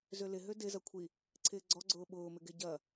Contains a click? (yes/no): yes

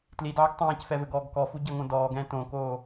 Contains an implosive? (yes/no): no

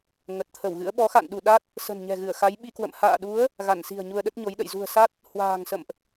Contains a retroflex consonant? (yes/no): no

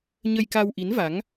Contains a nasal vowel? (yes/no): no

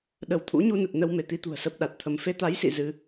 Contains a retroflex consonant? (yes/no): no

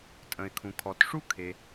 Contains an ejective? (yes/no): yes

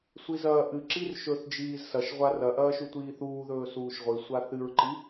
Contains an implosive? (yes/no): no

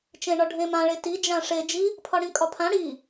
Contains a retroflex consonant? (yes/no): yes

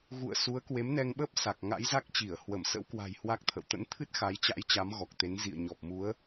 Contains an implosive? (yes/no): yes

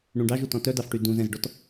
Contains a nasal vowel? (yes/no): yes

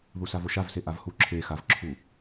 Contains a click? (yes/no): yes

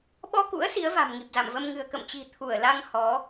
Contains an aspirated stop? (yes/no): yes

